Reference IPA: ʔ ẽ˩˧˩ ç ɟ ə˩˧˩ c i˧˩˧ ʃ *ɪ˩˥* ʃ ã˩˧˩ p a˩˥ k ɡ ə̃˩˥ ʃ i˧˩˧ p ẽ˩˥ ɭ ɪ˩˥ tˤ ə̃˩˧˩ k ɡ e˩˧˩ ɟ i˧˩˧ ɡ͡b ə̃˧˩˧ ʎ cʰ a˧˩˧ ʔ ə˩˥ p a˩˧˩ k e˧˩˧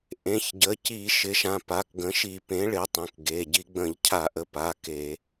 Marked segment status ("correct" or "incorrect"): correct